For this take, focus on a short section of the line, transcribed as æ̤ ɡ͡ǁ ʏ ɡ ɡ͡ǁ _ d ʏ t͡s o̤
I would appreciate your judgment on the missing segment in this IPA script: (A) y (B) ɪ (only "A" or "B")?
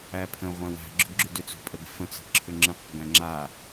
A